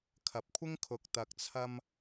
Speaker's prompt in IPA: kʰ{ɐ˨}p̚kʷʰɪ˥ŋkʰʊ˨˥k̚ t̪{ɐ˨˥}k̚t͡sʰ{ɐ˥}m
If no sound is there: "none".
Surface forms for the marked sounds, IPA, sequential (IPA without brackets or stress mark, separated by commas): ɐ˨, ɐ˨, ɐ˧